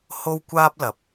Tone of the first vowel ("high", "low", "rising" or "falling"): high